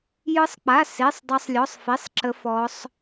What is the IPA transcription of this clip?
jɯ˦˥sˤk͡pa˧˥˧ se˧˥˧sˤ dˤa˦˥sˤlʲɔ˧˥˧sˤfi˧˥˧sˤ ǁə˦˥fɔ˦˥sˤ

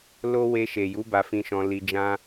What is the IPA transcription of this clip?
lo˦ we˧ʃe˨ju˨˦ ba˧fĩ˧ʃɔ̃˧ li˧ d͡ʒã˦

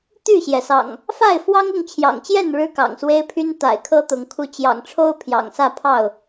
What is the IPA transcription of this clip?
t̪y˥˨ɕjɛ˩sɑ̰˨˩ŋ | fa˥˨ɪ̯fwɑ˦ŋʊ˥˨ŋ t͡ɕʰjɑ̰˨˩ŋt͡ɕjɛ˥˨n ɻɻ̩˦kɑ̰˨˩ŋswe˦ɪ̯pʰy˦n t̪a̰˨˩ɪ̯kʰɤ˦t̪ʊ˨˦ŋ kʰu˨˦t͡ɕjɑ̰˨˩ŋ ʈ͡ʂʰo˦ʊ̯ pʰjɑ̰˨˩ŋsä˥˨pʰɑ˥˨ʊ̯

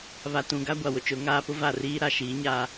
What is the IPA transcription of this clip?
βa˨tũ˨ɡa˦ ɡʷa˨wʊ˨t͡ʃʊ˨˦ ŋaː˦pʊ˦va˦˨riː˦ ɾa˨ʃiː˨˦ɲaː˦

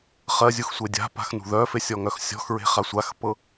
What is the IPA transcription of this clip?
χɜzʲuxsʷe dʲa̤pa̤xnṳ ðœfesʲɔŋœx sʲɔ̤xɹe̤χa sʷaxpɤ

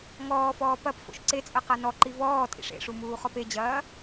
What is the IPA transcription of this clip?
ŋɔːfɔː pɐp fo̰ʃǀet͡sʼɐ qanɔǃi vɔː tʼḭʂḛʂu muːχɔped͡ʑɐː

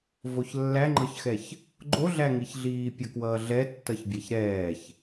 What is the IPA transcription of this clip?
voçlːæŋ͡ǃɤçxɛç | ɡ͡ǃoɮæŋiçɮiː pʲʌkwʌːɮɛ tːʌçbʲæçɾɛːç

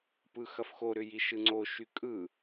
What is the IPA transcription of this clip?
pɯxɐfxoɾʏ jiʃɯŋ͡ǀoʃy kʼɯ

